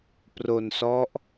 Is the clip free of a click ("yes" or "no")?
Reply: yes